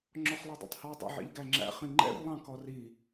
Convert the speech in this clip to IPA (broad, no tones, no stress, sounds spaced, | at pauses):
ŋ͡ǁ ɔ χ lˠ ɛ dˤ ḭ tˤ h ɔ dˤ a̰ ʕ ḭ ʎ ɡ æ ŋ͡ǁ æ̰ χ ĩ ŋ͡ǃ ɛ̰ r lˠ ɑ̃ k ɔ r i